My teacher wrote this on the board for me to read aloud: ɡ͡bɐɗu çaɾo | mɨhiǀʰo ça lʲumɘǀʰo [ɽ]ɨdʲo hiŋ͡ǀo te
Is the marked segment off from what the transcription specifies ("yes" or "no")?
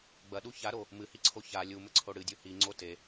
no